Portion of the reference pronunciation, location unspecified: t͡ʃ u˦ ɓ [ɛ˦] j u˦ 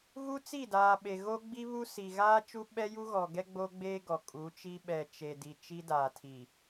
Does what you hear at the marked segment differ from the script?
no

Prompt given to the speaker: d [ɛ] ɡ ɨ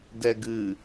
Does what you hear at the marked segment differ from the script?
no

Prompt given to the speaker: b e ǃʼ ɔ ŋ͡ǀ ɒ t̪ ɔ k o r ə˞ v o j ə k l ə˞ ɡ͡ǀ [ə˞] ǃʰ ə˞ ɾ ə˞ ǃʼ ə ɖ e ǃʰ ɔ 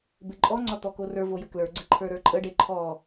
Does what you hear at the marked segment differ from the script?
yes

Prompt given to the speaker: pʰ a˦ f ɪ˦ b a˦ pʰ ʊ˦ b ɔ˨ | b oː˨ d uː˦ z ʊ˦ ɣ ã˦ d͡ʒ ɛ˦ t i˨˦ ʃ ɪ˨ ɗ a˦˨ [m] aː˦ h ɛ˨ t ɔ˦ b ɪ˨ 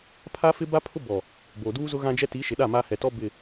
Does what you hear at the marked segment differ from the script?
no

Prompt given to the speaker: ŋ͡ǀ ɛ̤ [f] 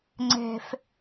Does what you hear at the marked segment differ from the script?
no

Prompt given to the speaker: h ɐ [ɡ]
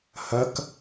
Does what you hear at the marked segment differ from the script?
yes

